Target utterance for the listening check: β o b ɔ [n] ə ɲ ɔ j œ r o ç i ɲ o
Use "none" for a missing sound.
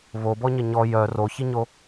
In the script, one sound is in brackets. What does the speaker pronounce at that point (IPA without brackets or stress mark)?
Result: ɲ